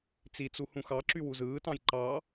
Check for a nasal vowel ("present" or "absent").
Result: present